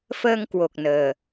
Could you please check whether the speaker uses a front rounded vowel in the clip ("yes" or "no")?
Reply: no